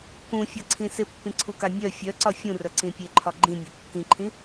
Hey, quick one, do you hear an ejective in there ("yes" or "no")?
no